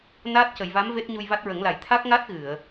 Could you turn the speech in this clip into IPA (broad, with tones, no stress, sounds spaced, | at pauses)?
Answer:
n aː˦˥ t̚ c ə˨˩˨ j v a˧˥ m v e˦˥ t̚ ɲ u˧ j v a˦˥ t̚ ɹ ə˨˩˦ ŋ l a˨˩ j t̪ʰ a˦˥ k̚ ŋ a˦˥ t̚ ɣ ɨ˨˩˨ ə̯